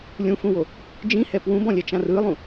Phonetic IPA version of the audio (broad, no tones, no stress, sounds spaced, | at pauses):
lʲ ũ f ũ w o | d͡ʒ ĩ h ɛ p w ũ b ɔ̃ lʲ ɛ t͡ʃ ã r ɯ lˠ ũ